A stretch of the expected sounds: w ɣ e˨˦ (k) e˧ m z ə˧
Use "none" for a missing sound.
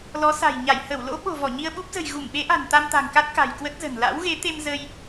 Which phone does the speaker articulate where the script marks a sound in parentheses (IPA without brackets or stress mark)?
t̪